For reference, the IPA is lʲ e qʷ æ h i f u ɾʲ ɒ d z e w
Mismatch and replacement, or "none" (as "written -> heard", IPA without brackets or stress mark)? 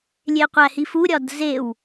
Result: none